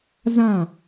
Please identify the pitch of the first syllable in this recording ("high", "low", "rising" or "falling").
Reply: falling